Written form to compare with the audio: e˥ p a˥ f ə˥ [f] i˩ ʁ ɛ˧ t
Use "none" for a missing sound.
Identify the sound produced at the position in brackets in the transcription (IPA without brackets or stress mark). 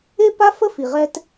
f